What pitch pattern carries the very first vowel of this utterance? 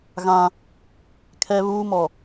high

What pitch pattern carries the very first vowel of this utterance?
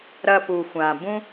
low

